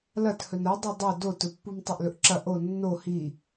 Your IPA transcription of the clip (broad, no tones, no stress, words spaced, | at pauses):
lɐthɵn ɐ dˤɵdˤɵ dotɵpːum tˤoʔlɵʔǁɐ ʔo nːo hi